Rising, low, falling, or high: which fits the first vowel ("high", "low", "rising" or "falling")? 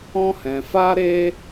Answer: high